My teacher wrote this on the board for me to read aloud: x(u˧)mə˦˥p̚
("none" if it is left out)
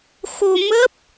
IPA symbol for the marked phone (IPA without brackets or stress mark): o˧